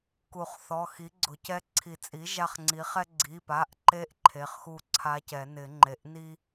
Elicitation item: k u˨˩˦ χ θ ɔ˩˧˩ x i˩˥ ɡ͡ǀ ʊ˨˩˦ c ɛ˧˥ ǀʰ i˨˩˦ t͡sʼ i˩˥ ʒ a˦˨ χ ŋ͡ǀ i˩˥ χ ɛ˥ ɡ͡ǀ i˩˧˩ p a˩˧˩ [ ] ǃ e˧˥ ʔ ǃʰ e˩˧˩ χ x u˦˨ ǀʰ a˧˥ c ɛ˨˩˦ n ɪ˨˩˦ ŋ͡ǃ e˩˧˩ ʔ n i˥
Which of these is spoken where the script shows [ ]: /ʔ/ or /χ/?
ʔ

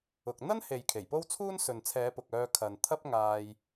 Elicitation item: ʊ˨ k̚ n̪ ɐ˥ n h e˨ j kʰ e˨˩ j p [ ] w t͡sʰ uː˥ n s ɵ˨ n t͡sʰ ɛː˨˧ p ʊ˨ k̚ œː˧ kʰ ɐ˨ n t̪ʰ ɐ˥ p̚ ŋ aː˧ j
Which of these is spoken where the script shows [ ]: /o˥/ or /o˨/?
o˥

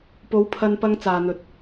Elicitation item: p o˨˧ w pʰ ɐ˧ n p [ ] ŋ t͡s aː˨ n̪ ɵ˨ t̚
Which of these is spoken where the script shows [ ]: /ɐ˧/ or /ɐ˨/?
ɐ˧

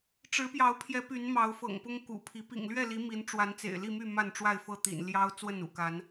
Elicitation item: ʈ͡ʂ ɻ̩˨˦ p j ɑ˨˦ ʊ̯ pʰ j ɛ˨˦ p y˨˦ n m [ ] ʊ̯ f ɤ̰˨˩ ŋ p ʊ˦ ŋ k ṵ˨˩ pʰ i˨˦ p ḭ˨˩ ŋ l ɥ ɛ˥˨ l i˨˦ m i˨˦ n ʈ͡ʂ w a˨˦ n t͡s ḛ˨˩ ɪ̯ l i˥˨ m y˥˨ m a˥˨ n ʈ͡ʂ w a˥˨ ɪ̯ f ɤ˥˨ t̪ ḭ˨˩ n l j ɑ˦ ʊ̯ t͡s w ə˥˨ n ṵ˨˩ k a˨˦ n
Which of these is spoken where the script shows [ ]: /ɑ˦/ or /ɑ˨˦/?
ɑ˨˦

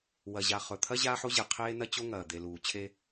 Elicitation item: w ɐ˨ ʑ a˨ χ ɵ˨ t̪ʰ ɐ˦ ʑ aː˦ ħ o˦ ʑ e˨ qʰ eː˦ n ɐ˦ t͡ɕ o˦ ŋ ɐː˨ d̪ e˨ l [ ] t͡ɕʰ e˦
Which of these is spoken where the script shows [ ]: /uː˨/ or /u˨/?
uː˨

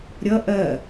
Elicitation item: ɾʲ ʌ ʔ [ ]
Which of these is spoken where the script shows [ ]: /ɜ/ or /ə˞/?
ɜ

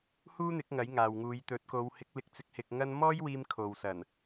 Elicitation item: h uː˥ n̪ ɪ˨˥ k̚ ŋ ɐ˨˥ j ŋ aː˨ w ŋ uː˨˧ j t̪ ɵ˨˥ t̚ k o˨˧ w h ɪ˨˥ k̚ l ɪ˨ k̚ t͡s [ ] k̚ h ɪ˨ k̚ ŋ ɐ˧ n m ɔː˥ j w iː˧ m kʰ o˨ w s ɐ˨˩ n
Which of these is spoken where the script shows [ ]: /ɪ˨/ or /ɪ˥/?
ɪ˨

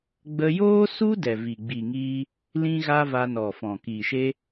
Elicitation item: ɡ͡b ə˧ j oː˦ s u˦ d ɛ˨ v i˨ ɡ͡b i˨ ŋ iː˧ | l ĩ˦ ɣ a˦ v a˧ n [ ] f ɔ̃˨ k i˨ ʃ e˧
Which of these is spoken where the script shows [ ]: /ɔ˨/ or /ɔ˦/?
ɔ˨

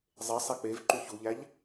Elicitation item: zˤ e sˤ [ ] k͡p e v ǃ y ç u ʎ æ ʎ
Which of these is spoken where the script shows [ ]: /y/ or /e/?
e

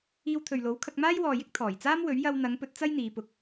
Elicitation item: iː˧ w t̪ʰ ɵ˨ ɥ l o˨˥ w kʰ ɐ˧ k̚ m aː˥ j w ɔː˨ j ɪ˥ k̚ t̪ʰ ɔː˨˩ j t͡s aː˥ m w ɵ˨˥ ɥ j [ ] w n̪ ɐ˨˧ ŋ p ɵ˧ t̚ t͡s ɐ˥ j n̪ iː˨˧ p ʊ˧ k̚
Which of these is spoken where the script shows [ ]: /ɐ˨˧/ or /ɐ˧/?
ɐ˧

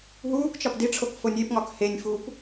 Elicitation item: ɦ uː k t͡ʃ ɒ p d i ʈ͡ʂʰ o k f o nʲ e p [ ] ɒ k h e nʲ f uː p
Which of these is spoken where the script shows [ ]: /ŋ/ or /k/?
ŋ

